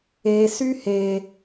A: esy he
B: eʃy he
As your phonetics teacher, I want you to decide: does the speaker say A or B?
A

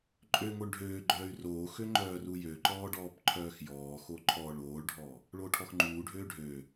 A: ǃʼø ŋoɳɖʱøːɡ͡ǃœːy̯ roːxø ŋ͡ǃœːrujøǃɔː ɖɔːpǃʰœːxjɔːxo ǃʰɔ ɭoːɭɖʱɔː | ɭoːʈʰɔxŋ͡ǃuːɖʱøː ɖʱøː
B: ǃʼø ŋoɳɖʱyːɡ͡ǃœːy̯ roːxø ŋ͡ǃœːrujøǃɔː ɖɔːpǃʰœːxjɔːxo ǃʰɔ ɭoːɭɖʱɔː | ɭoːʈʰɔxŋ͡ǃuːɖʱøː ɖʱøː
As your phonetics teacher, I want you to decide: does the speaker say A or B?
A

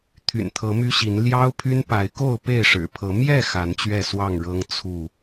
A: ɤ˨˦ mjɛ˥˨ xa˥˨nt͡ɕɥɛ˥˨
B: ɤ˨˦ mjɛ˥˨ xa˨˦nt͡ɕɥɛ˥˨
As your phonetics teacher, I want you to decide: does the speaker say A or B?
B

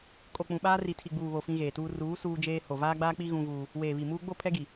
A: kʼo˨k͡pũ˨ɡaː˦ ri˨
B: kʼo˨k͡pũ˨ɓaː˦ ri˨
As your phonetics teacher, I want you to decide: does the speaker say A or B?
B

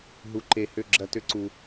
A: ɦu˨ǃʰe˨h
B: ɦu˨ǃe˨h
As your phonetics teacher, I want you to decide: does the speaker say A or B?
B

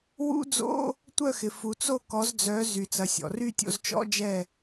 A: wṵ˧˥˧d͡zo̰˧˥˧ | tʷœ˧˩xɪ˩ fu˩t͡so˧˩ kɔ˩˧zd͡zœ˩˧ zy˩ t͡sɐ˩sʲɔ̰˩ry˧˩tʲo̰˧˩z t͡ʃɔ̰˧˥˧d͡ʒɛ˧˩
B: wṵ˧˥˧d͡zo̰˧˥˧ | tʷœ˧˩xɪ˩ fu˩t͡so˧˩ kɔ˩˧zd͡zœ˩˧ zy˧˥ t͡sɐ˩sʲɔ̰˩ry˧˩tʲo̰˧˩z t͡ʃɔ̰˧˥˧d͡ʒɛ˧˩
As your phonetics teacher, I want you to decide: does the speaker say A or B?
A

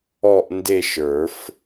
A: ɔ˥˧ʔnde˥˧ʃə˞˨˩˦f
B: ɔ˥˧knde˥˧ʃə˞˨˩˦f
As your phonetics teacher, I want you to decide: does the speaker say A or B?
A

